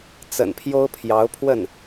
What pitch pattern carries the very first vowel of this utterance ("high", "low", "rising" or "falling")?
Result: low